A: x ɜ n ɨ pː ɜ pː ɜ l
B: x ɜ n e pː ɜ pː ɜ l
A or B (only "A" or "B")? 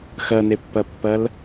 B